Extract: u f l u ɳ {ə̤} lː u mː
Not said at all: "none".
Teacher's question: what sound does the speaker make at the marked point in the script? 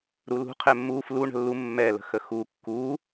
ə̤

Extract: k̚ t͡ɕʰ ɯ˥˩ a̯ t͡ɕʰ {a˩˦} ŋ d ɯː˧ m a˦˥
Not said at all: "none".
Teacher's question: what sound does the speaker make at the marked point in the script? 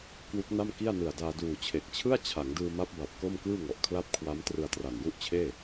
a˩˦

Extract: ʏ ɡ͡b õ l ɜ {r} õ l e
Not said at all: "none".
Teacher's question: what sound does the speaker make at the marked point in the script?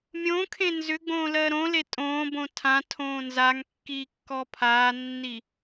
ɾ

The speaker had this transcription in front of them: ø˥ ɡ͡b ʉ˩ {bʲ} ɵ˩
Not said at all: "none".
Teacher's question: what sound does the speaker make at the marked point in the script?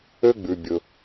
bʲ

